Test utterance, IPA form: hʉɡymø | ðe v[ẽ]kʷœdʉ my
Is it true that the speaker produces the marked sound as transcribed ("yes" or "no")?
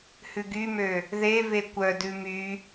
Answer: no